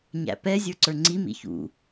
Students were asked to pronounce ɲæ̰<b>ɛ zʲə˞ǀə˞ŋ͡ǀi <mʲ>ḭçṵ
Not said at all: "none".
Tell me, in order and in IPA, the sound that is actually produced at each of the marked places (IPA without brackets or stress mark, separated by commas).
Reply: p, m